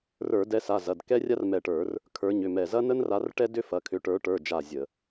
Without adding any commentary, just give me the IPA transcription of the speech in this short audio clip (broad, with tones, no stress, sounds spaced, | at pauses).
r ə˞˧˩˧ d ɛ˨˦ s a˩˧˩ z ɐ˩˧˩ d k ɛ˥ rʲ a˥ r m ɛ˧˩ ʈ ə˞˧˩˧ r | kʰ ə˞˨˦ ɲ ʏ˩˧˩ m ɛ˧˩ z ɐ˥ n ə˥ n r a˨˦ r ʈ ɛ˥ d ʏ˥ f ɐ˩˧˩ kʰ ʏ˨˦ ʈ ə˞˨˦ ʈ ə˞˩˧˩ d͡ʒ a˧˩ zʲ ə˧˩˧